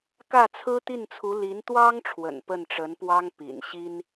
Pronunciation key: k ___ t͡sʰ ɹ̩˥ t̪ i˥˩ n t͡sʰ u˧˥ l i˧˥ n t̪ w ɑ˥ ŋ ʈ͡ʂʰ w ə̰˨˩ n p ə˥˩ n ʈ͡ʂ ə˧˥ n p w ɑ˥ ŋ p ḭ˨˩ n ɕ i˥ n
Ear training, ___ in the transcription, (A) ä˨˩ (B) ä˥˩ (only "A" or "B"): B